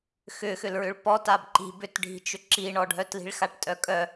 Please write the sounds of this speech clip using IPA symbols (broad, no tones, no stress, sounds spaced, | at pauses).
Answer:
x ʏ x ʏ l ɹ ʏ ɭ p ɔ t a b ǃ i̤ b ʏ t ɖʱ i̤ t͡ʃ ʏ ǁ i ɳ ɔ ɖʱ œ t l i̤ ɭ x a ʈ tʼ œ kʼ œ